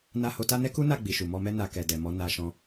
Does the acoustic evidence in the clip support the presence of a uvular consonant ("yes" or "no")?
no